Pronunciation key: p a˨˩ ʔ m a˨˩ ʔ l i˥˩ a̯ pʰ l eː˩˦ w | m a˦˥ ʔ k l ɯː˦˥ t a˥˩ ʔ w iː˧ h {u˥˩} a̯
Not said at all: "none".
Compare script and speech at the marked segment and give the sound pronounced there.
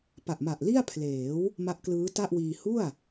u˥˩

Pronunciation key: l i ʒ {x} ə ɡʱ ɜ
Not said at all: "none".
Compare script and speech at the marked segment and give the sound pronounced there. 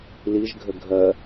ɡʱ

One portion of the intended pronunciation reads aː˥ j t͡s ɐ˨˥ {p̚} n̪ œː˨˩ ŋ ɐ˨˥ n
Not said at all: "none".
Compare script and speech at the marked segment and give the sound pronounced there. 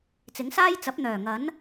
p̚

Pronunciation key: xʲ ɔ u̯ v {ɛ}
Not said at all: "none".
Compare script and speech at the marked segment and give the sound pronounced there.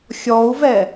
ɛ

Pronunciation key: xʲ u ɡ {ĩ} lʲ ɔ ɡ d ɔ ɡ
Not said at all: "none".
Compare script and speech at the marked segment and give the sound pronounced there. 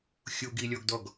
i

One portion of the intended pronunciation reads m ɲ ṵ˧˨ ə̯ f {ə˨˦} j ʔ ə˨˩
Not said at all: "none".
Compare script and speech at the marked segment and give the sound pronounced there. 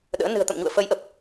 ə˨˦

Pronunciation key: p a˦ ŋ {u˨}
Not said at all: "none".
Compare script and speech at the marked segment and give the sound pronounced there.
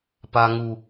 u˦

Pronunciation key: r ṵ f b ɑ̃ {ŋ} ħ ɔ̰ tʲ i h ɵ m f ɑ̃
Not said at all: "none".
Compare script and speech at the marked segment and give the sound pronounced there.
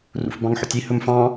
ŋ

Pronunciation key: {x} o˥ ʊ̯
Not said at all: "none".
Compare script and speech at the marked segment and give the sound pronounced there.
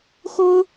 x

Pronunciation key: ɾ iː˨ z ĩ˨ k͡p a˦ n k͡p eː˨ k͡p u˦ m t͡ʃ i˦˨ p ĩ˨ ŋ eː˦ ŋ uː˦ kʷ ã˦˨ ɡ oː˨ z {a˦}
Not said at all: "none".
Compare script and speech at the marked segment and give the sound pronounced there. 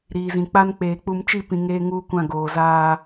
aː˦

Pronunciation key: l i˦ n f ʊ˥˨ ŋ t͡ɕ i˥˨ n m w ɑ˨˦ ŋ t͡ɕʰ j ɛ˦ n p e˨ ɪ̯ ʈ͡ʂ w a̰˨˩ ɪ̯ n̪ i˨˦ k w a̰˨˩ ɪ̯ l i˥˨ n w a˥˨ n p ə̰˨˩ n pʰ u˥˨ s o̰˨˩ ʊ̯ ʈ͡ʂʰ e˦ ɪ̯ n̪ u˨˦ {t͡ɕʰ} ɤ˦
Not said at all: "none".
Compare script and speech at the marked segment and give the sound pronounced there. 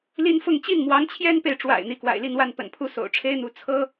t͡sʰ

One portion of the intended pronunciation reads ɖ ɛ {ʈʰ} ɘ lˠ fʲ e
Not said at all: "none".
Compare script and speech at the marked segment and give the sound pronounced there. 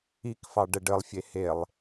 ɖ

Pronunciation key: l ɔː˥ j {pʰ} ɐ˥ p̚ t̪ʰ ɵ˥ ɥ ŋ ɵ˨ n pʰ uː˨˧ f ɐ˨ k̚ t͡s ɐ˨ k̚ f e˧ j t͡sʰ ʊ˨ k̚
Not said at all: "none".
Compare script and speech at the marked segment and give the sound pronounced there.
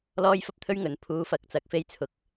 f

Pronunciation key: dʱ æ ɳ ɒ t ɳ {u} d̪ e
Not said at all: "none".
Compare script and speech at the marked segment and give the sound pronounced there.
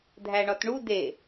u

